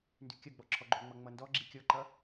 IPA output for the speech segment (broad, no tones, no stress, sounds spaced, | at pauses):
n d ʉ kʲ ʌ ɡ͡b ɔ ǁʰ ɔ ɡ͡ǃ o ŋ͡m ʌ ŋ͡m ʌ n d ɔ ɡ͡ǁ i kʲ ɔ ǃ ʌ